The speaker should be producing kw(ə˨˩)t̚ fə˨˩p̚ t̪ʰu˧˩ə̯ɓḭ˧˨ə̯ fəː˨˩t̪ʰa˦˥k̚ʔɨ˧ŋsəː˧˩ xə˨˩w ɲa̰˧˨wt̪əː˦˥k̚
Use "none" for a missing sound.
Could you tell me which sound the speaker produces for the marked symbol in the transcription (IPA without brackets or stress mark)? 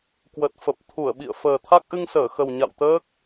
ə˨˩